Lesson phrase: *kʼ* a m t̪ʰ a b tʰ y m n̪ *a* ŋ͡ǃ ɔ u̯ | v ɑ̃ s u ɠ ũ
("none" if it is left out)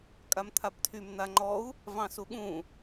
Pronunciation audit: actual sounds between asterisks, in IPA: kʼ, a

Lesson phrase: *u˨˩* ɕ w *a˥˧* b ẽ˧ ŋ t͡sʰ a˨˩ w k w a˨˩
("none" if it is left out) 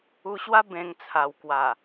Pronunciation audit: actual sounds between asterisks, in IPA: u˧, a˦

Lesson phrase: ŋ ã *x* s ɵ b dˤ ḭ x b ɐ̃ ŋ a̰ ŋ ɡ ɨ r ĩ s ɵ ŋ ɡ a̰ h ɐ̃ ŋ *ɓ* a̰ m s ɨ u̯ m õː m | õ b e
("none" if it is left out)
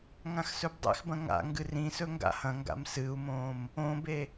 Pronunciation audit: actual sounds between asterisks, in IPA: x, ɡ

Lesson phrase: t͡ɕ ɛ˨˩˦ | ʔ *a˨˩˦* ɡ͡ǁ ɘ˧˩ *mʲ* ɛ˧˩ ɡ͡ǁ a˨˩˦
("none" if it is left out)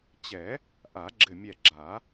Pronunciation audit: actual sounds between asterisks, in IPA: a˨˩˦, mʲ

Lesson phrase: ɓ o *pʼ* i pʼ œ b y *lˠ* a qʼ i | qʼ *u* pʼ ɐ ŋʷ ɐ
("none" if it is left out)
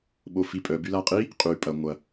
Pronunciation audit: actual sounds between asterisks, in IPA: f, l, y

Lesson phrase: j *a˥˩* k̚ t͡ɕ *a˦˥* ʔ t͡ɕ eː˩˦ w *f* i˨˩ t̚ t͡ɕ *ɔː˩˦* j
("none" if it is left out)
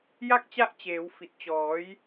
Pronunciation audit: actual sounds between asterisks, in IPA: a˥˩, a˦˥, f, ɔː˩˦

